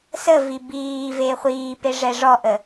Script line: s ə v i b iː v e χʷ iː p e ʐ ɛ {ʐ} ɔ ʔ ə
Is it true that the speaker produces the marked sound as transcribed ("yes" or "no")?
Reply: yes